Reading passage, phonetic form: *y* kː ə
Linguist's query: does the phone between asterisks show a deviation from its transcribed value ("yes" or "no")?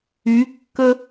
no